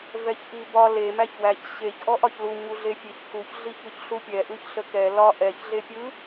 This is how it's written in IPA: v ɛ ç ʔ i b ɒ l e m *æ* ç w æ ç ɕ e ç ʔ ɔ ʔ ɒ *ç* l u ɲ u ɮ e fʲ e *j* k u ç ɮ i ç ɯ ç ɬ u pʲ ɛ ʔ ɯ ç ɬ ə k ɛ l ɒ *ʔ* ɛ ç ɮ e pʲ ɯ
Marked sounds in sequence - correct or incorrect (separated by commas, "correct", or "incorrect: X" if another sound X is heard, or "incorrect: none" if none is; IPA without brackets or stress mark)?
correct, correct, incorrect: ç, correct